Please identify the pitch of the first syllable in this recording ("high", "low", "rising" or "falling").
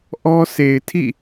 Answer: high